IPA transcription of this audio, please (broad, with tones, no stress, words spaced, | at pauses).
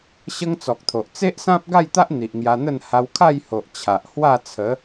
ɕə˦ŋt͡sɔ˨k̚t̪ʰo˨ʔ t͡se˦ʔsã˦p̚ɡa˥˧jt̪a˦ʔ n̪i˨ʔŋja˧n̪ə˥˧n ha˧wkʰa˥˧jho˨ʔ t͡ɕʰa˨ʔ hwa˥˧t͡sʰə˨˦